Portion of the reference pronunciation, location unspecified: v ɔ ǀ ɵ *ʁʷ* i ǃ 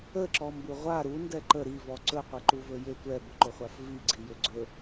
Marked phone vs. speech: incorrect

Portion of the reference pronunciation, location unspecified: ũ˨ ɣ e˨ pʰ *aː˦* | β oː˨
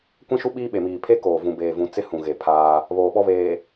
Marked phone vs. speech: correct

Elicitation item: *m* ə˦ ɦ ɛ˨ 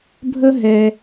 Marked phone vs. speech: incorrect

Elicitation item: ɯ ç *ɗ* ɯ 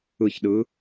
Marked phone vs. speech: correct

